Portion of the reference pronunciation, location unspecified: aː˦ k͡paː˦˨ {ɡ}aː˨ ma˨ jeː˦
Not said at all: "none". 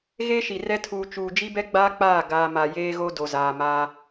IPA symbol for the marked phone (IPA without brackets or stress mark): ɡ